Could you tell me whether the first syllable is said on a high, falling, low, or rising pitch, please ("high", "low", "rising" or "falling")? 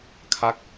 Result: falling